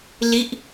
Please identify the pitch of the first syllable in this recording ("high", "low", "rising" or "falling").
falling